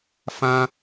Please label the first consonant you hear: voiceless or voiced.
voiceless